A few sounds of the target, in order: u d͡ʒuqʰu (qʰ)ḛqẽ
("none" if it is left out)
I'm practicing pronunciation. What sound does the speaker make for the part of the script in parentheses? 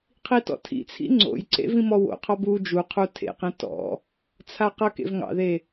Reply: tʰ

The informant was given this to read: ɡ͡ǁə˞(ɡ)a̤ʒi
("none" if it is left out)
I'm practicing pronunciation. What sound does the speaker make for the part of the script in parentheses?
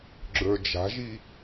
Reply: d͡ʒ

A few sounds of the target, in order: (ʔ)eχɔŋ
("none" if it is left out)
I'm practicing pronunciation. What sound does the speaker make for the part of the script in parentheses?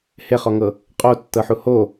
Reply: h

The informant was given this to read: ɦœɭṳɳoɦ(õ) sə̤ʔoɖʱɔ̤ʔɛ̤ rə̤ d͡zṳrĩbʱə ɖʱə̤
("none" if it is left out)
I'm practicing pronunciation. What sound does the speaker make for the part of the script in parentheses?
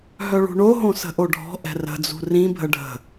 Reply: õ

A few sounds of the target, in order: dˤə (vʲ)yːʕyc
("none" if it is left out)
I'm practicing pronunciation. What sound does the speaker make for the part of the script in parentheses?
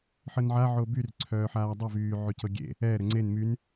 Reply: v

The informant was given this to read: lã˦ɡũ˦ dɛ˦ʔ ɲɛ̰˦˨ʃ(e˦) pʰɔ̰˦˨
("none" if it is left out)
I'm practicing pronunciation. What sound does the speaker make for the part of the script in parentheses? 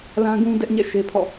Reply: e˦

